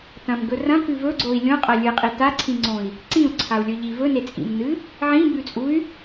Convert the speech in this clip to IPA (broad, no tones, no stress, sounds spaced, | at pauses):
t ɐ̃ m ɡ ɵ r ɐ̃ k ʉ v ɵ ɡ͡ǀ o i̯ lʲ õ qʼ ɐ lʲ ɨ qʼ i t a ǀʰ ĩ ŋ͡ǀ õ i̯ | ǀ ĩ u̯ ǀʰ a u̯ lʲ ɵ ʎ i v ɵ n e t͡sʼ ḭ m n ɨ | ʕ ĩ b ʉ t͡sʼ u y̯